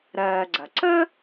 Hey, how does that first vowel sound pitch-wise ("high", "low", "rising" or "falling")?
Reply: low